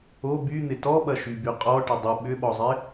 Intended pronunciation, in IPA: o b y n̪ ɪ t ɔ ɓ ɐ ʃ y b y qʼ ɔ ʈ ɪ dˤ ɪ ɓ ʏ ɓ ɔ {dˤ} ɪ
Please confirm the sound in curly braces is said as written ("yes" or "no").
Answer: no